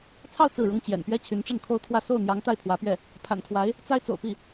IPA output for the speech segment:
t͡sʰɑ˥˧ʊ̯ t͡sɹ̩˥˩ɻʊ˥ŋ t͡ɕjɛ̰˨˩npɥɛ˥ t͡ɕʰy˧˥nʈ͡ʂə˥˩n kʰo˥ʊ̯ t̪ʰwä˥˧ so˥˩ʊ̯ n̪jɑ˧˥ŋ t̪a˥˩ɪ̯pʰwä˧˥pɥɛ˥˩ | pʰa̰˨˩nkʰwa˧˥ɪ̯ | t͡sa˥ɪ̯t͡so̰˨˩ʊ̯pi˥˩

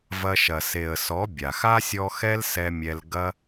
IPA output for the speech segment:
vɐ˧ʃɐ˨ se˨ə̯sɔ˨˦ bʲa˨x a˦sʲɔ˧xɛ˦l sɛ˧mʲɛ˧l ɡɐ˦

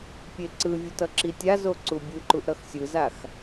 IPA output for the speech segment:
pʲeǀɯvʲut ʌǁitʲazo ǀubʲɯǃuʔ ɾʌxsʲɯzax

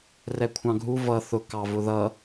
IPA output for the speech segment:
rɛkʷʰɑ̃ɡʱu vʌ θʊ kɑvʊðʌ

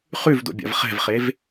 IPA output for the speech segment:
χʉvdo̰bʲa̰v χɛ̤vχev

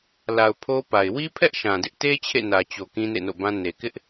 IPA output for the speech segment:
la˨ʊ̯ pʰo˦pa˨ɪ̯ wi˦pʰɛ˦ʔ ʃã˨dɪ˦ʔ te˦ t͡ɕʰḛ˦˨nä˨t͡ɕo˨ kĩ˦nḛ˦˨no̰˦˨bã˦ ne˨kɪ˦ʔ

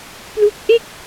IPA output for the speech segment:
plu˦˥k̚ʔe˥˩k̚

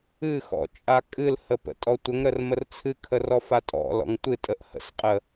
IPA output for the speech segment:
ɨxɔ̰ t͡ʃʼakʼɨlhə pə̰tʼɔtʷəŋɾər mərt͡sʰɨkʰə rɔfatʼɔ̰lɔ̰ŋ tʷɨtʼəʔ hə̰sqʼə

